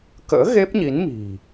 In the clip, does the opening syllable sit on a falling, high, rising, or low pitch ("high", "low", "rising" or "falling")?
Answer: rising